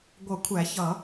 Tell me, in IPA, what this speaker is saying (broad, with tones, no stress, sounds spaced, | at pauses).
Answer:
ɡʷ ʌ˨˩˦ kʷʰ æ˨˩˦ ç ʌ˨˩˦